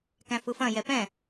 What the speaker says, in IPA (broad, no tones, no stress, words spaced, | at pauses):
kæ̃fɯfɐ̃ jɛpɛ̃